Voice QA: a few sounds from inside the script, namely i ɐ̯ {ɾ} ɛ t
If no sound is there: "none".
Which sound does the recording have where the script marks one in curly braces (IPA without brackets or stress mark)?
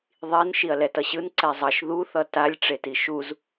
l